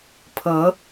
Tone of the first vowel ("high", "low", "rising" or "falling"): rising